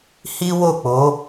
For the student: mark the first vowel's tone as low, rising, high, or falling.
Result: high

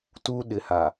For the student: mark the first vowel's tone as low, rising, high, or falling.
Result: high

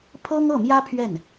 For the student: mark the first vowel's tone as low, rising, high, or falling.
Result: high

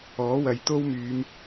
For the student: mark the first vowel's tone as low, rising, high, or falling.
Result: rising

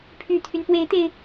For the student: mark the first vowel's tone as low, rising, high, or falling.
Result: low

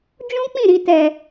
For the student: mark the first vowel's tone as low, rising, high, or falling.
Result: high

